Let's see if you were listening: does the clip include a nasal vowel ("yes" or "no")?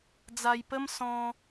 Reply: yes